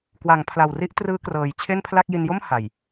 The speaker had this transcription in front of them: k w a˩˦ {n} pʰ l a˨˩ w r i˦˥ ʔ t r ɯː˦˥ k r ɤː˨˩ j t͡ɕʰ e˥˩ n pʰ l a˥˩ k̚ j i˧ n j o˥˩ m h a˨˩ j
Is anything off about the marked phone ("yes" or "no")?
yes